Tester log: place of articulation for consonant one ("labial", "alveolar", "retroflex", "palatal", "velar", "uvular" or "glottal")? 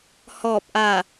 glottal